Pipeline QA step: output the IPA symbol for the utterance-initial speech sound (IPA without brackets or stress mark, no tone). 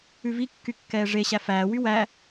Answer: ʉ